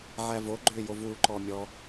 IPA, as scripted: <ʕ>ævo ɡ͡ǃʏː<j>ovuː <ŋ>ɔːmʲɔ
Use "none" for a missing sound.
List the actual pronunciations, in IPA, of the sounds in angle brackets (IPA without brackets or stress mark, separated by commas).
ʕ, j, ǃ